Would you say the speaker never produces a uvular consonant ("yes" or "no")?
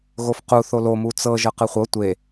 no